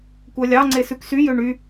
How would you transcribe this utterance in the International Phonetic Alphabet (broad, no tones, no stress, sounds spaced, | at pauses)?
kʷ œ lʲ ɑ ŋ͡ǀ e s ʉ k s y j ø ɳ y